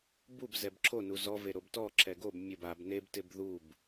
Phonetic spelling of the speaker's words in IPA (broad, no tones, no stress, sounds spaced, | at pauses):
b u b z ɛ b ǁʰ o n u z ɔ v e ɾ o b t ɔ ǁʰ ɛ ɡ o b mʲ o b a b n e b t ɪ b ð u b